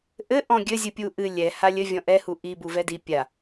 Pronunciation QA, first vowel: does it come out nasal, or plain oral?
oral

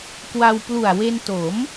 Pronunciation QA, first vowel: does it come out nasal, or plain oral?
oral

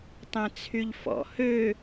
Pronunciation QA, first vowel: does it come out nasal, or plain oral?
nasal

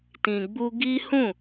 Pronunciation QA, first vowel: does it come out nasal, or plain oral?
nasal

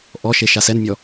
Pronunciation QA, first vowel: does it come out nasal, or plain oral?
oral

